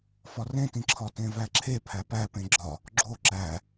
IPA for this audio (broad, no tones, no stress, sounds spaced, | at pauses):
f ɒ r ẽ t ĩ ǁʰ ɒ t ẽ v æ ǁʰ e pʰ æ p æ p ẽ ɡ͡ǁ ɒ | ɡ͡ǁ o ǁ æ